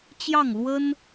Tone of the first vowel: falling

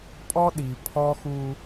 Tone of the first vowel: high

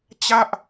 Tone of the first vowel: falling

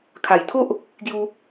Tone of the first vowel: low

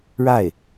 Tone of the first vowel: falling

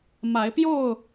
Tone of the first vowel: rising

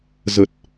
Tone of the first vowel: low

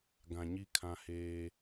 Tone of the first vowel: low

